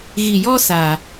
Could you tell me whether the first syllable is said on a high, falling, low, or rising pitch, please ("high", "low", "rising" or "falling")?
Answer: low